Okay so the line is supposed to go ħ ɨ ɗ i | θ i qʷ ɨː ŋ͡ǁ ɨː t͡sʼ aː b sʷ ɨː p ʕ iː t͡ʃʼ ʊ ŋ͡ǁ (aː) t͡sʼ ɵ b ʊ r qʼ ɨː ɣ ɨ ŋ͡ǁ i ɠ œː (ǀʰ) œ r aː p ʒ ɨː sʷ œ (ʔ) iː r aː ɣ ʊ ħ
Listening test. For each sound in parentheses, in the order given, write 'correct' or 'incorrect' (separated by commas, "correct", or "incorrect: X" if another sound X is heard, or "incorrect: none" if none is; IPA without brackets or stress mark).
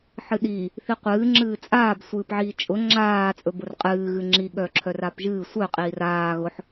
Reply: correct, incorrect: ǁʰ, incorrect: qʼ